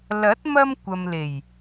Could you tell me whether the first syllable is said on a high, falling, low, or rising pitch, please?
rising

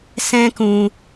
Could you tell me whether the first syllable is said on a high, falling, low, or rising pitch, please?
high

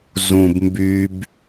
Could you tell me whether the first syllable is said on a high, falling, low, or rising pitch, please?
low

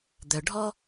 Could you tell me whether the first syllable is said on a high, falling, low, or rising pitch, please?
low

